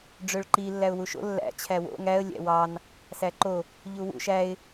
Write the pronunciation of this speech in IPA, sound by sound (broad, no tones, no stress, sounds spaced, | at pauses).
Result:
ɖ͡ʐ ø ɭ ǃ i lː æ ʊ̯ w u ʃ o̰ lː æ̰ t͡ɕʰ æ w o̰ ŋ æ ə̯ lʲ æ̰ w ɑ n | s æ ǃ o | ʎ u w ṵ ʃ æ ɪ̯